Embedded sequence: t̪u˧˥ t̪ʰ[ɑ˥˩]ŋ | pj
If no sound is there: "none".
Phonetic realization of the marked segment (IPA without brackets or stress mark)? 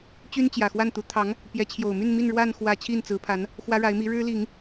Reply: ɑ˧˥